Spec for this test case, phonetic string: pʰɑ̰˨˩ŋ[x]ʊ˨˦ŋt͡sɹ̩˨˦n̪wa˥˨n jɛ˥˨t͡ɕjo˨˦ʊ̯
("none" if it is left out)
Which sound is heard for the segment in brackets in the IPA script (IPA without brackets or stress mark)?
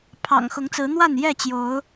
x